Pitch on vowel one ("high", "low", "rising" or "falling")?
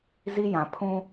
high